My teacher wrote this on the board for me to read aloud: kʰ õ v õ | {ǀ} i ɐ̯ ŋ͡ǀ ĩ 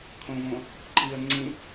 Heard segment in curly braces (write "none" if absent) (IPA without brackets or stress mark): ǃ